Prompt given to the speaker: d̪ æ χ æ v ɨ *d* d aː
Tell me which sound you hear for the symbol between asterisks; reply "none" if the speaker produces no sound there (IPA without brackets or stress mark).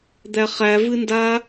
n